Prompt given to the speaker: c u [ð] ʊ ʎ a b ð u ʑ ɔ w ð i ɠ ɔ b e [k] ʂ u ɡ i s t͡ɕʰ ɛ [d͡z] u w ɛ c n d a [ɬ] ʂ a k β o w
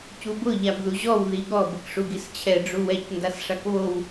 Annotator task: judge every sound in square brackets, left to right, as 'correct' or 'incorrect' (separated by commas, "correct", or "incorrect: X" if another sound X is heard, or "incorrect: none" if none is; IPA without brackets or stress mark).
incorrect: b, correct, incorrect: ɖ͡ʐ, incorrect: s